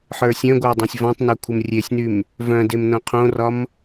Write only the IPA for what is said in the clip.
ħə˞sʲœ̃ɡʷə˞ dˤẽsʲvɔ̃tˤnœ kʷʰəmrʲesʲnym | vœ̃dem nõqʰõrɒm

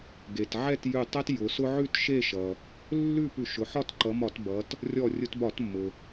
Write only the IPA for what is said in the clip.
ɡe˩t ʕɛ˥˨tjʉ˧˩ tˤɛ˦t jʊ˩˧sʊ˦ ʕʉ˥˨tʃe˥˨ʃʌ˩ | lːʉ˥˨ pʉ˧˩ʃʊ˩˧ ħɒ˥˨tǃʌ˩˧mɒ˧˩˧t bʌ˩˧t | rʲɔ˧˩rʲʊ˧˩˧tbɒ˧˩˧tmːʊ˩

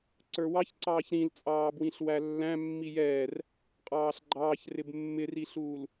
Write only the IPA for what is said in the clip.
ǀə˞wɑçǀɑːç ɾĩlt͡sʼɑː bwĩɬwælːæ̃ mːijɛːr | qʼɑːɬɡ͡ǃɑːç rɪbmːɪriɬuːl

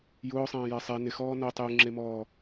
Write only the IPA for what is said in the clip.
jʊːsˤẽːjɛ sˤe nɪxɔː notˤ juŋ͡ǁemɔː

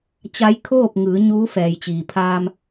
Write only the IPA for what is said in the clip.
t͡ɕa˧˥jkʰoː˥˨p̚ŋɯː˩˧ ɲuː˧˥fɛː˩jt͡ɕiː˩pʰaː˧m

